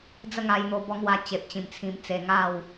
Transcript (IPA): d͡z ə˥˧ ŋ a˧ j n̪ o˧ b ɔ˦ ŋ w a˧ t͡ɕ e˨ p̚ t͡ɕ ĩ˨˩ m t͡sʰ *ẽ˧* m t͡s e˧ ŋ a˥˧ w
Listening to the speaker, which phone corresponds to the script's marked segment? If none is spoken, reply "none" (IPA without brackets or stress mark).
ĩ˧